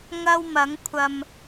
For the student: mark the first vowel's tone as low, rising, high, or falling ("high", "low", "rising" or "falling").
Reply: high